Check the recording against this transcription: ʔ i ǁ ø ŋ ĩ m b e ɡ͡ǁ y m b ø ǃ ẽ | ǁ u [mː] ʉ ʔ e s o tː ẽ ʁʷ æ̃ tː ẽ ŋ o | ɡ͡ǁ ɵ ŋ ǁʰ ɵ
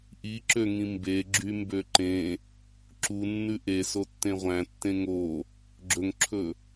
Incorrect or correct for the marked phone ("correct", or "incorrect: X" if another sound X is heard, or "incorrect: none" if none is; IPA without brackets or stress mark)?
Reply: incorrect: nː